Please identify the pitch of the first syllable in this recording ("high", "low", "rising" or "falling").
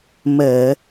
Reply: low